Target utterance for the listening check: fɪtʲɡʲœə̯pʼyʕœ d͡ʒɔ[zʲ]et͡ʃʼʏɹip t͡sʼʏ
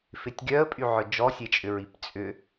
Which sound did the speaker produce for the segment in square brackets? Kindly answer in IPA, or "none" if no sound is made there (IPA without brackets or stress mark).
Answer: sʲ